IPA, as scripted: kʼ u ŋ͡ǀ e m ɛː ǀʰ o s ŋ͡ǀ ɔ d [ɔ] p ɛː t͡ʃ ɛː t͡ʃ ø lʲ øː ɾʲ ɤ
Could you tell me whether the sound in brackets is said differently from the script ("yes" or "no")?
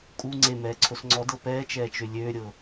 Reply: yes